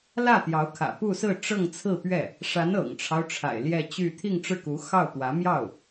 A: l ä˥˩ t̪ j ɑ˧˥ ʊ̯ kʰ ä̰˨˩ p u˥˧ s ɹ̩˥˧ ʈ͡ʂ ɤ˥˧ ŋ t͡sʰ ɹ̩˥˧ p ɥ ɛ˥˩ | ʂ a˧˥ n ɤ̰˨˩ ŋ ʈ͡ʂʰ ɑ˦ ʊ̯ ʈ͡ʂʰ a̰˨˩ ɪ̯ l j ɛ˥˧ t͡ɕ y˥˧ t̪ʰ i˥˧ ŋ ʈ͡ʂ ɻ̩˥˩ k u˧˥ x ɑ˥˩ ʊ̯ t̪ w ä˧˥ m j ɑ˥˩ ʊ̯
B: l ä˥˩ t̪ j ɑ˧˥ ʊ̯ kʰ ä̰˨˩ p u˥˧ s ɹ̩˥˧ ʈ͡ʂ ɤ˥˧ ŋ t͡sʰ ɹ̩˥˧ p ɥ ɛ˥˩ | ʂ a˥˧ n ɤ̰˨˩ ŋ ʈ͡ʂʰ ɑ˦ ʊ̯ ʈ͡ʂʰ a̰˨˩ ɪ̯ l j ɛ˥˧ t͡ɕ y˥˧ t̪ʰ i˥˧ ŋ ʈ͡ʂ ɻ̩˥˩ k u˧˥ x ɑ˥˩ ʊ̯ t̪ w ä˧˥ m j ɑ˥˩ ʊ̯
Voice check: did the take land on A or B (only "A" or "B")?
A